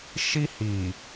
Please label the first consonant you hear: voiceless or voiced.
voiceless